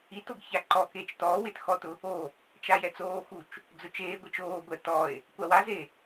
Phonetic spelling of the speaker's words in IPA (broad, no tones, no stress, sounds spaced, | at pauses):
i t o ɡ ç a ǃ ɔ k eː t͡ʃ t ɔː w ɪː t x ɔ t ʊ | o | t͡ʃ a j ɛ t͡s oː x u t͡ʃ | d͡z ʊ t͡ʃ eː ɡʷ i t͡ʃ oː ɡʷ ɛ t ɔ e̯ | kʷ a w a z e